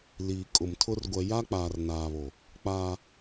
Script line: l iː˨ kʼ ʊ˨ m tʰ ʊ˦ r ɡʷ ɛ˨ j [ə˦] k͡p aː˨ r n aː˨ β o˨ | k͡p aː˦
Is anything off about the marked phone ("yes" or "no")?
yes